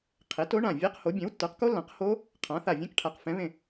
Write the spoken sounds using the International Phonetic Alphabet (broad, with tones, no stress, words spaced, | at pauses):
qʰe˩˥to˩˥ɳã˧˩ vʲɛ˦˥qho˩˥ bʲɛ̃˩˥wtːə˞˩˥qko˦˥lːã˩˥q ho˦˥ | qʰã˩˥θa˧˩ vʲɛ̃˦˥kʈʰa˩˥qfɛ̃˩˥ βẽ˧˩